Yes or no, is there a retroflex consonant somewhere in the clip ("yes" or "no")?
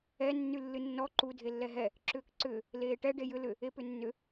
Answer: yes